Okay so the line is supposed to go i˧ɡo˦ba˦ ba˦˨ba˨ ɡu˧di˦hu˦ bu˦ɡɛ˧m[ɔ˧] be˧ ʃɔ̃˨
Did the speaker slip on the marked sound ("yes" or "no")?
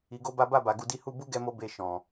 yes